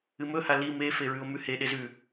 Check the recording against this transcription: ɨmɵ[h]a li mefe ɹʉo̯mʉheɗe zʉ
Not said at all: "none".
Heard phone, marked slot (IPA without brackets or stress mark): h